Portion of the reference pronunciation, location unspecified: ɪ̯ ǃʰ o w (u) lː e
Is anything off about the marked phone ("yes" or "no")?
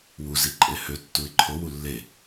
no